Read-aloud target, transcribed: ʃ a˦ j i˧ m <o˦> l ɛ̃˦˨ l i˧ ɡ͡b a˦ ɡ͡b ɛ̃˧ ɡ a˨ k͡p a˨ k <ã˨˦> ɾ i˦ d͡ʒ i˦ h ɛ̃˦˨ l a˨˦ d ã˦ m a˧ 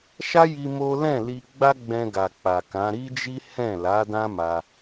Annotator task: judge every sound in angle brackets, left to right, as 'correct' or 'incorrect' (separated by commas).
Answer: correct, correct